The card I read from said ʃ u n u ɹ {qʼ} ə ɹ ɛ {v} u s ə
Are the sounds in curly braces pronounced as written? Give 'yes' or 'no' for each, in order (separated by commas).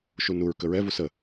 no, yes